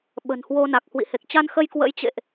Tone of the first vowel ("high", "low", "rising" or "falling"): low